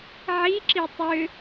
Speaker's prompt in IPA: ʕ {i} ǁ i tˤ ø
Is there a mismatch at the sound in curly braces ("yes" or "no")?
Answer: no